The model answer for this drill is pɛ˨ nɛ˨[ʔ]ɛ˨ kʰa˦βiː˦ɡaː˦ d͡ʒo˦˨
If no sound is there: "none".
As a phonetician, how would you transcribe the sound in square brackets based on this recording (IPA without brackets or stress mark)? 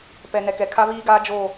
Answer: k